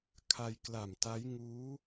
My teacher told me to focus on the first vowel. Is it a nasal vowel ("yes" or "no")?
no